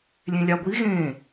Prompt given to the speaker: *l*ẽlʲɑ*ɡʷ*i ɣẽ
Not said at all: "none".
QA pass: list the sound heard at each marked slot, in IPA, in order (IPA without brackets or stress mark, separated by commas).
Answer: lʲ, ɡʷ